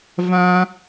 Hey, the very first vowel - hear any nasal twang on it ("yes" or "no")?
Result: yes